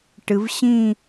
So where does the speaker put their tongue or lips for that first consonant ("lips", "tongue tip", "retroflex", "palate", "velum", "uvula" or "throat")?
retroflex